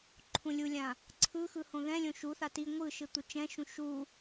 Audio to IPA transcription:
ǃʰ ũ lʲ u lʲ ã | ǀʰ ɯ x ɯ h õ ð ɛ̃ lʲ õ ʃ u θ a t i ŋʷ ɯ ʃ ɯ t̪ u t͡ʃ ɛ̃ ʃ ũ ʃ u

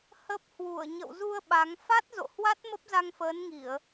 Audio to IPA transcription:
h ə˦˥ p̚ h w u˧˩ ə̯ ɲ ə̰˧˨ w z u˧ ə̯ ɓ a˨˦ ŋ f a˦˥ t̚ z o̰˧˨ h w a˦˥ t̚ m ə˦˥ p̚ z a˧ ŋ f əː˨˦ n ŋ i˧˩˨ ə̯

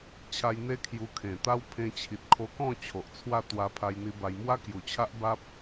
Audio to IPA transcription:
t͡ɕʰ a˧ j n̪ e˦ kʰ j u˧ kʰ ẽ˨˩ t̪ a˦ w pʰ ẽ˧ t͡ɕʰ i˨ t̚ kʰ o˧ k ɔ̃˥˧ t͡ɕʰ o˨ ʔ t͡sʰ w a˥˧ t̪ w a˧ pʰ a˧ j n̪ i˧ b a˧ j m w a˦ k j u˨˩ t͡ɕʰ a˦ ʔ b a˦ p̚

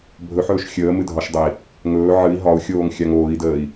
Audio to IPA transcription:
bʱ ɵ ħ ɵː ʃ xʲ əː m ɨ dʱ ɒ ʃ dˤ ə i̯ | ŋ ɵː ʕ ɨ i̯ ɦ ɒ u̯ xʲ oː ŋ xʲ a ŋ oː i̯ d əː i̯

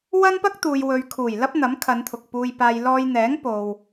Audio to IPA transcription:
w ɐ˥ n p ɐ˥ k̚ t̪ uː˨ j w ɵ˨ ɥ kʰ uː˨˩ j l ɐ˥ p̚ n̪ ɐ˨˥ m kʰ ɐ˨˧ n t̪ʰ ʊ˨ k̚ p uː˧ j p aː˧ j l ɔː˧ j n̪ ɛː˨˥ ŋ p o˨ w

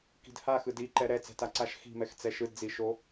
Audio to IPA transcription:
k i̤ d h a x ɯ d i ǃ ɛ ɾ ɛ t͡s ɛ̤ t a ǀ a ʃ x i̤ m ɛ x t͡s ɛ ʃ ɯ d d͡z i ʃ o

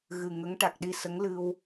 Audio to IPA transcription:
ɣ ɨ˨˩ ŋ ə˧˥ ŋ ʈ a˨˩ k̚ ɗ i˧ s ə˧˥ ŋ l ɨ˧ w

